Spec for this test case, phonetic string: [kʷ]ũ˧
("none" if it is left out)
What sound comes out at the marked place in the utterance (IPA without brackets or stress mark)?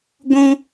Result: ɡʷ